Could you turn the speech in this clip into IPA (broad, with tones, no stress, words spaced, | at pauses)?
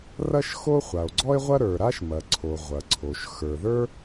rɐ˥ʃxo˥ χʷa˩o̯ɡ͡ǀɔ˥e̯ʁʷɐ˥ ɾə˞˩ɾa˥ʃ mɐ˩ ǀʰo˩ ʁʷɐ˩ǀʰo˩ʃ xə˞˩ðə˞˥